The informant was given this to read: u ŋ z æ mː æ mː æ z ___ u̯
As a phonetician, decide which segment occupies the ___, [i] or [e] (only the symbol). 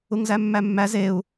e